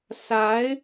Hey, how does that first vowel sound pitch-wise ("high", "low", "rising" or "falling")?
rising